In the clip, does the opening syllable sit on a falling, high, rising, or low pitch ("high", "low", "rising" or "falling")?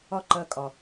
high